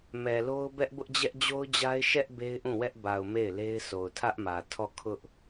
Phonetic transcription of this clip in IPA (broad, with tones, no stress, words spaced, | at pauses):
mɛ˨lo˦ʊ̯bɛ˦ʔ bʊ˦ʔd͡ʑɛ˦ʔd͡ʑo˦ʊ̯d͡ʑa˦ɪ̯ ʃɛ˦ʔ be˦ɪ̯ʔũ˦˨wɛ˦ʔ ba˨ʊ̯ me˦˨ɪ̯le˦ɪ̯ so˨ʊ̯tʰä˦ʔmä˨ tʰɔ˦˨ kʰʊ˦ʔ